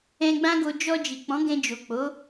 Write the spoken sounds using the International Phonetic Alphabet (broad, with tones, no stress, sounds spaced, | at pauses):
ɛ̃˧ ɡ͡b ã˦ ɡ o˧ d͡ʒ ɔ˧ d͡ʒ i˨ k͡p ɔ̃˨˦ ɡ ɛ̃˧ d͡ʒ o˨ k͡p o˨˦